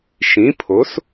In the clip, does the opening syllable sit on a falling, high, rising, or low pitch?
rising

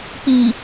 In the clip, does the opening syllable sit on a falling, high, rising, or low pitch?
low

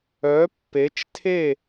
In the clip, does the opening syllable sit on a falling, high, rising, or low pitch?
rising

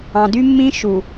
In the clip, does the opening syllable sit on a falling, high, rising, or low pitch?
low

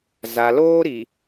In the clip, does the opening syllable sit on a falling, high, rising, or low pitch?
low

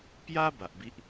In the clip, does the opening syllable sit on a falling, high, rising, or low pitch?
high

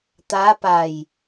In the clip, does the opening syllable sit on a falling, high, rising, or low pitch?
rising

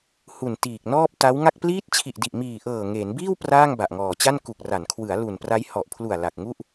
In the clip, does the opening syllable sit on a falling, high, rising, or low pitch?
low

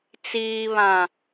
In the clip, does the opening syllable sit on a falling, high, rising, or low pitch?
low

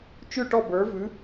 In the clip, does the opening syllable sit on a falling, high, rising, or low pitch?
falling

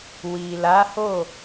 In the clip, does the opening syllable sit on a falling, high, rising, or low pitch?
low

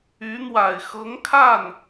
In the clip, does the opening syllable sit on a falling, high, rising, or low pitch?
rising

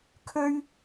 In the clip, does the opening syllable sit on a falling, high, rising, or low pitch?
high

